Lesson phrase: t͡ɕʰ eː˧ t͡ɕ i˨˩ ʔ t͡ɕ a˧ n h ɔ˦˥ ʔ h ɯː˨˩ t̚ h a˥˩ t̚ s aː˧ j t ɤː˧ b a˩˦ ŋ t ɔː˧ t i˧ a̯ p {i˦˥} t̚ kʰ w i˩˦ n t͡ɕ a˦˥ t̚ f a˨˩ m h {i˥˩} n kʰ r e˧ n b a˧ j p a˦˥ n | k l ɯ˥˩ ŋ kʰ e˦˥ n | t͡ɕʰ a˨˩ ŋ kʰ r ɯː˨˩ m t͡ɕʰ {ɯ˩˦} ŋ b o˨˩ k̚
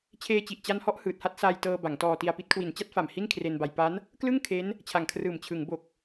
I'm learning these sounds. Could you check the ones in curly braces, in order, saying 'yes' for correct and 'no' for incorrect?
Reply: yes, yes, yes

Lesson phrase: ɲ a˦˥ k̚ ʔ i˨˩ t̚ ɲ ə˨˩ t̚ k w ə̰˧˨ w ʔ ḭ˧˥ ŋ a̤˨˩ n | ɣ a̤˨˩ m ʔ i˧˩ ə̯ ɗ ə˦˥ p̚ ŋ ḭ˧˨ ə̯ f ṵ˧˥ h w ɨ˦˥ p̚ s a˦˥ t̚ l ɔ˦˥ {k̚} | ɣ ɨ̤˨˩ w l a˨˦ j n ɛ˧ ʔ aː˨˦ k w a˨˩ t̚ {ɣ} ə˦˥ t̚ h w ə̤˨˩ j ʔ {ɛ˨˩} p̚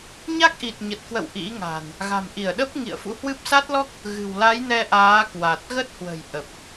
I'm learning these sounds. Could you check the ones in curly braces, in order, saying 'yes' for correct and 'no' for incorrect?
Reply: yes, yes, no

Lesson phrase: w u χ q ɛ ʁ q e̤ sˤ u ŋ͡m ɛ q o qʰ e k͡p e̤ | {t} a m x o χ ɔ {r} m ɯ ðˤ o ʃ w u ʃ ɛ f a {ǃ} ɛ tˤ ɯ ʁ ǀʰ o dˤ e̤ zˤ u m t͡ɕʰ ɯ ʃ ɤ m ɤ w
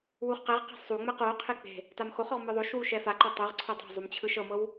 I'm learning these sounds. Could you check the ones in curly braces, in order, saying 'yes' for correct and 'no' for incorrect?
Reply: yes, no, yes

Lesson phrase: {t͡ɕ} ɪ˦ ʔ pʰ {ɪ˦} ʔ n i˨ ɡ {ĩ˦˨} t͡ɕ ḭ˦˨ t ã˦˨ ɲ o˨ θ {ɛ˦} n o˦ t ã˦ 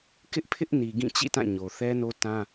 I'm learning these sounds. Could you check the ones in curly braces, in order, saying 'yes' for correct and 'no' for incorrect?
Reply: no, yes, yes, yes

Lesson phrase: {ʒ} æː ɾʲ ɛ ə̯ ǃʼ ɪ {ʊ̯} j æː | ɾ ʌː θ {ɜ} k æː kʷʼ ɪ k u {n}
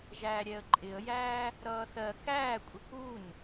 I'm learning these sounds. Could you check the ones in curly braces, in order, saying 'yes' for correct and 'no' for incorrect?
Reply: yes, no, yes, yes

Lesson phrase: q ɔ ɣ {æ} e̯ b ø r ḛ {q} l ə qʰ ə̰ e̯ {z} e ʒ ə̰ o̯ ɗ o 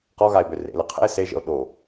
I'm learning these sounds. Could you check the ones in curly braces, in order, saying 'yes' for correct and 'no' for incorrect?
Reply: no, no, no

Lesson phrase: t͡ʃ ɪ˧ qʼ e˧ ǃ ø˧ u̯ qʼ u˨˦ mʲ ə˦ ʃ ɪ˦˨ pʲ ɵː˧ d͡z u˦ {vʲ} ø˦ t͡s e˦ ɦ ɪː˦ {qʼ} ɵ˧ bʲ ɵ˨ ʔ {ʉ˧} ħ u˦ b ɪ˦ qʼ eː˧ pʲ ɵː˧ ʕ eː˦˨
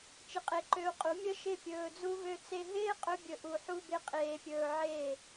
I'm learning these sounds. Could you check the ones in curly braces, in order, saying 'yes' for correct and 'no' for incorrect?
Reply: no, yes, no

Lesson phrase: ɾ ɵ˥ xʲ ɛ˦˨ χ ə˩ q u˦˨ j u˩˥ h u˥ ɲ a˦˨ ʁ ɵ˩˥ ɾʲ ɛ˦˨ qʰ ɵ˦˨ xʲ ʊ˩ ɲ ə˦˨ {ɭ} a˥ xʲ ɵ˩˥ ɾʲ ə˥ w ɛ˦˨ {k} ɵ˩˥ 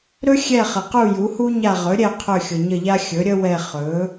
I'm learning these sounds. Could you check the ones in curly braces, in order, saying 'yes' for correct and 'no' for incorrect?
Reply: no, no

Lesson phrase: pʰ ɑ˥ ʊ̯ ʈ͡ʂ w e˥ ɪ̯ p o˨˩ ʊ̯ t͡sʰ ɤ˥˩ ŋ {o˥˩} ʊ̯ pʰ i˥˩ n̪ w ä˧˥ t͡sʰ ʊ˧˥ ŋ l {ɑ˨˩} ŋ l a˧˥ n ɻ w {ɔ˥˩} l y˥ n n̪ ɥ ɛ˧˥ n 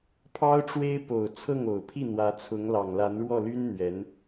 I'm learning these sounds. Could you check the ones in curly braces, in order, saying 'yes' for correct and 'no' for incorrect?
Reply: no, yes, yes

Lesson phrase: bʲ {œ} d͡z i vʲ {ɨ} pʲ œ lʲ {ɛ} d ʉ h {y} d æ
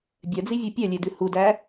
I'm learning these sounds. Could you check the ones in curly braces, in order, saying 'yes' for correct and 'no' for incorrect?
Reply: yes, no, no, no

